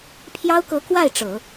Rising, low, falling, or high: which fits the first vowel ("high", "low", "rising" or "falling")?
high